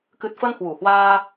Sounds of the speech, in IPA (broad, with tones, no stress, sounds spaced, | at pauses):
k ɨ˨˩ t̚ f ə˧ n h w u˨˩ h w aː˧